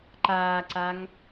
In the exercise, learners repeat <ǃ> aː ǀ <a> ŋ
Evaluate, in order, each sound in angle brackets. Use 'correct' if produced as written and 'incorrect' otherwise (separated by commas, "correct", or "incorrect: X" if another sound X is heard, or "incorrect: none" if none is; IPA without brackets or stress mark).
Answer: correct, correct